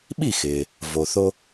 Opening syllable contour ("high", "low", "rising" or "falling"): falling